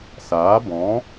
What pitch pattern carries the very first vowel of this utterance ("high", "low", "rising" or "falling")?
rising